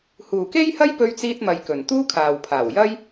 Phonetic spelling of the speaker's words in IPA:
h uː˨ k e˥ j h ɐ˥ j p ɵ˥ ɥ t͡s iː˥ t̚ m ɐ˧ j k ɵ˨ n t̪ uː˥ kʰ aː˨ w pʰ aː˨˩ w j ɐ˥ j

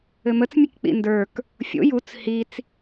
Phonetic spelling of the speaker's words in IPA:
ɘ m ə t͡s mʲ ɘ k k͡p ḭ n d ə˞ k | fʲ o̰ j u t͡s h i t͡s

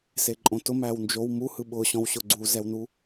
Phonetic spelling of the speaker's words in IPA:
s e ǃʼ õ t ʊ m æ w n d͡ʒ o w m u h ɯ ɓ ʊ ɕ ɔ̃ w ɕ ʊ ɡ͡ǀ u z ɛ w n u

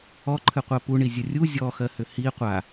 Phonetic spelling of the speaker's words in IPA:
ɔ ǃʰ ɨ qʷ ɜ p u ɳ i zʲ ə rʲ u zʲ ɔ x ɜ h ʏ h i qʷ a

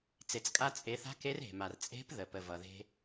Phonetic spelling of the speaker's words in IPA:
t͡s e˩ t͡s kʼ a˧ t͡sʼ e˩˧ θ a̤˧˥ k e˧˥ r e̤˩ m a˩ r t͡sʼ e̤˧˥ p ð ə˩ p ə˩ v ʌ˩ ð e̤˧

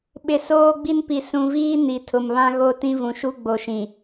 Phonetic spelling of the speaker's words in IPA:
ɓ ɪ˨ s oː˦ ɡ͡b i˦ n p i˨ s ũ˨ v iː˦ n i˨ tʰ ʊ˨ m β ã˦ ɣ o˦ t ĩ˦ v ũ˨ ʃ u˦ ɡ͡b o˨ ʃ ĩ˨

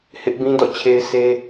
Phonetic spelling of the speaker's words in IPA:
h ɪ˦ ʔ b ĩ˦ d ɔ̰˦˨ t͡ɕʰ e˦ ɪ̯ s e˦

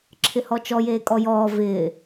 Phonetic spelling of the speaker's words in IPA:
ǁʰ ɪ h ɔ t͡ʃ ɔ j eː kʼ ɔ j ɔː v ɪː

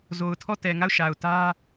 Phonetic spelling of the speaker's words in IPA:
z o˨ ʊ̯ tʰ ɔ˦˨ t ɛ˨ ŋ a˦˨ ʊ̯ ʃ a˨ ʊ̯ t ä˦

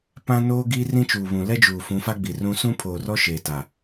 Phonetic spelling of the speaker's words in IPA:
p ã˦ n oː˦ ɡ i˦ r ĩ˦ t͡ʃ uː˨ β ũ˨ l ɛ˦ d͡ʒ uː˨ f ũ˨˦ f a˦ ɡ͡b i˨ r ũ˦ s ũ˦ pʰ oː˨ r ɔ˦ ʃ eː˨ t a˨

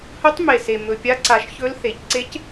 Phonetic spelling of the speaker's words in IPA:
h ɵ˧˥ tˤ m e˨˩ s e˨˩ m ɵ˨˩ pʲ a˧˥ ǀ a˨˩ ʃ ç ɵ˧˥ l θ e˩˧ c ǀ e˧˥ c

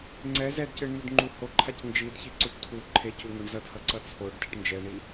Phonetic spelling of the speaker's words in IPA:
ŋ͡ǀ ɛ z ɛ d c ɯ ɳ n̪ u d ŋ͡ǃ u h o ǃʰ a c n d͡ʒ i d ç i ǀ u ʈ tʰ u ǃʰ e c u ŋ o ɳ z ʌ d h ʌ ǀ ʌ t͡sʰ o ɖ d ɛ ʈ n d͡ʒ ɛ ɳ i

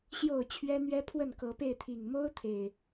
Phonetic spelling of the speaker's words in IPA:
ɕ j o˥˨ ʊ̯ t͡ɕʰ ɥ ɛ˦ n̪ ɥ ɛ˦ pʰ w ə˥˨ n k ɤ˨˦ p e˥˨ ɪ̯ t̪ʰ i˨˩ ŋ m o˦ ʊ̯ t̪ʰ e˨˩ ɪ̯

